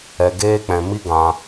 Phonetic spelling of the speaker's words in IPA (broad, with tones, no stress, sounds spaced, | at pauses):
ɛ˧ ɡ eː˦ k͡p ɛ̃˧ m i˦ ɡ ã˧